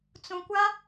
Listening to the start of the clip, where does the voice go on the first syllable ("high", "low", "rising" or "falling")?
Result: low